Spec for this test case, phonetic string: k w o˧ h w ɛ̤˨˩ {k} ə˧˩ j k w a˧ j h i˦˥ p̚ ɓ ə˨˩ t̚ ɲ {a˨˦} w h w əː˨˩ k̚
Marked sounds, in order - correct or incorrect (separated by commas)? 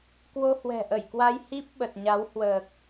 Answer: incorrect, correct